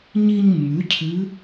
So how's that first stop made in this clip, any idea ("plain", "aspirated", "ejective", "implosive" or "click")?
aspirated